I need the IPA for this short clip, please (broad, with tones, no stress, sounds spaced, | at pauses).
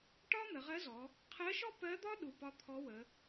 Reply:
ʈ ɒ˥ n̪ ə˩˧ ʁ ɜ˧˥ z ɔ˩˧ | qʰ ɜ˧˥ ʃ ɔ˥ p ɜ˧˥ d̪ ɒ˥ ɗ u˩˧ p ɒ˧˥ t̪ʰ ɔ˧˥ w ə˩˧